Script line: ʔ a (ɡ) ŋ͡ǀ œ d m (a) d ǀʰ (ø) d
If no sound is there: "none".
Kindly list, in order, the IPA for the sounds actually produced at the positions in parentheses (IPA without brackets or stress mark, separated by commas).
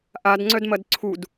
d, ɐ, u